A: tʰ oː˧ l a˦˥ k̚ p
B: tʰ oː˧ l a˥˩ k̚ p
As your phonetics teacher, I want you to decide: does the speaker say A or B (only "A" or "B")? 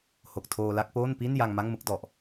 B